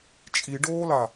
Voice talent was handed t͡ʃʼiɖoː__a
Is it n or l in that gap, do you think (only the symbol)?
l